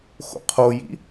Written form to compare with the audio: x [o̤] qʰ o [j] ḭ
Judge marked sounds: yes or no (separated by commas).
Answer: no, yes